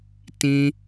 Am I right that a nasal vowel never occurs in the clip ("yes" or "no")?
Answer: no